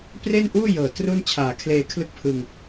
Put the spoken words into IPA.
pre˥˩nʔuː˥˩ jɤː˨˩ tru˥˩nt͡ɕʰaː˨˩kʰleː˧ kʰlɯ˥˩k̚pʰɯ˧ŋ

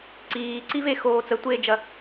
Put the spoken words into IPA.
ǀiːǀivexoː t͡sətʷeːd͡ʒɐ

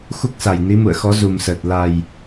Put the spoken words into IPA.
xu˦˥k̚sa˨˩j ni˨˦mṵ˧˨ə̯xɔ˨˦ zu˨˩msəː˨˩t̚ la˨˩j

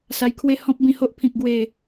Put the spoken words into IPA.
sa˧jkʰwe˥˧ hɔ̃˦p̚bĩ˧ho˦ʔpʰĩ˨k̚ ɡwe˨˩

